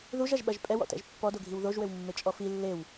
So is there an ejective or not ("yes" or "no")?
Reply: yes